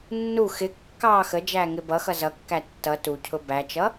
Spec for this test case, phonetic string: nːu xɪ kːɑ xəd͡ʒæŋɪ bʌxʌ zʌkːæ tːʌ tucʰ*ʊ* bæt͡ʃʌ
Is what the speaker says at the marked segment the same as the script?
yes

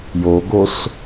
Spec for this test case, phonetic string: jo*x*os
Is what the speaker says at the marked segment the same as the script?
no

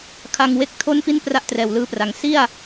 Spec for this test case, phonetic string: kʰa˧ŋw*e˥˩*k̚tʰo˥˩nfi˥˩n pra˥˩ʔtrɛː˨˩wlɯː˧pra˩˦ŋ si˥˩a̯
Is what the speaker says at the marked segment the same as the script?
no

